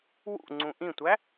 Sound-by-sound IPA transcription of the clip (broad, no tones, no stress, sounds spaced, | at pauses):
w ṵ ŋ͡ǀ ũ ʔ ĩ tʷ æ